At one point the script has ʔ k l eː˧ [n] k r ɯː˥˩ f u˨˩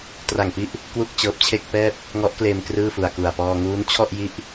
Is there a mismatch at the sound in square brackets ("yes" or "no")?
yes